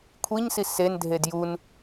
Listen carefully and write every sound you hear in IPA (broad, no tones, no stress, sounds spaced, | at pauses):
kʷʰ i ɲ s i s e n dʱ e d j u n